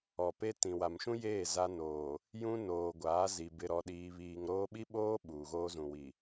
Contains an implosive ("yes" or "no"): yes